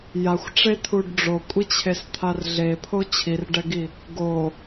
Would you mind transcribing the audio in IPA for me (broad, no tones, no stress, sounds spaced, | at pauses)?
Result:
j a xʷ ʈ͡ʂ e t̪ʰ u ɖ ɖ͡ʐ o kʷʼ i t͡ɕʰ e s t̪ʰ a r ɮ e pʰ o t͡ɕʰ i r ɖ ɛ ɡ i | ɡ o